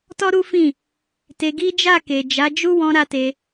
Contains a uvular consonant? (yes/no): no